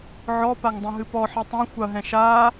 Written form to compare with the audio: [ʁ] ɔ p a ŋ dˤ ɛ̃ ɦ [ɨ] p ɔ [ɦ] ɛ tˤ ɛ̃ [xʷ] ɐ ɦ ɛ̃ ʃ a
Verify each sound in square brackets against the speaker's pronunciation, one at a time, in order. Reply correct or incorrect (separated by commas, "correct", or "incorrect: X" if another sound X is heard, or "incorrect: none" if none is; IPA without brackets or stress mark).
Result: incorrect: ʕ, correct, incorrect: ħ, correct